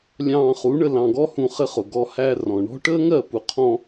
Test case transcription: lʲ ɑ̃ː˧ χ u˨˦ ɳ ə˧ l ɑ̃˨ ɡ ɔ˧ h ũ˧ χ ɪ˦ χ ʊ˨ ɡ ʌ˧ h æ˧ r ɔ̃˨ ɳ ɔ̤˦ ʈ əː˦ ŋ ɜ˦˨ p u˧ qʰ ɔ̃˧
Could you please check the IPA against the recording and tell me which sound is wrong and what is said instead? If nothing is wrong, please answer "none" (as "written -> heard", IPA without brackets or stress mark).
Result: ʌ˧ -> ɔ˧